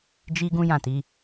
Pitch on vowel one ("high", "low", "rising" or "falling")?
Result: high